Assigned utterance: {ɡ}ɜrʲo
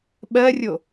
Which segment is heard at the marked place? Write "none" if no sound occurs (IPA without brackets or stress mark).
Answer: ɓ